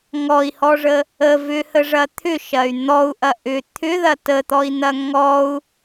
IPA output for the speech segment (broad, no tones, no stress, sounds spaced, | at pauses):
ŋ ɔ i̯ h ɔ ʐ ə | ə v ʏ h ə ʐ ɐ t̪ʰ ʏ ʃ ɐ y̯ n̪ ɔ u̯ ʔ ɐ ʔ ʏ t̪ʰ ʏ ð ɐ t ə t̪ ɔ i̯ n̪ ɐ ŋ ɔ u̯